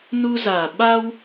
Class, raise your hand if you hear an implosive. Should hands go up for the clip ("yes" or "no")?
yes